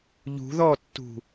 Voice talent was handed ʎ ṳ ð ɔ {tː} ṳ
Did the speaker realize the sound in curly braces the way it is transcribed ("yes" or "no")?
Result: yes